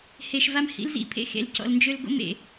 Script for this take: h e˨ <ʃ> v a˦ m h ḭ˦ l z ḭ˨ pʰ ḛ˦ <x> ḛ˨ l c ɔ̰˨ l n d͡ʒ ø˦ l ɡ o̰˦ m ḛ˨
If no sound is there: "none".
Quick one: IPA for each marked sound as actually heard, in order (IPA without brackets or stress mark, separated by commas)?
ʃ, x